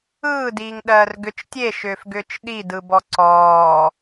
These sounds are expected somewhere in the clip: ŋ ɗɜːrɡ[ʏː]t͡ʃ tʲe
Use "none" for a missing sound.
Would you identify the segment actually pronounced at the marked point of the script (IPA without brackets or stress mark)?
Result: ʏ